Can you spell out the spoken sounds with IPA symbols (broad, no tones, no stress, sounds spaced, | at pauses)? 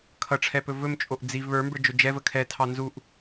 kʰ ʌ ʈ͡ʂʰ ɛ p ɵ v ɵ m t͡ʃʼ o ʔ d͡z i v β ə˞ m b ə˞ d͡ʒ ɵ d͡ʒ ɛ v ə kʰ ɛ tʰ ɑ n z u ʔ